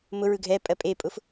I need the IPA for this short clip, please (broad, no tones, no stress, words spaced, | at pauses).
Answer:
mʊ ɹɯɡʱɛpʼɜ pʼepʼʊf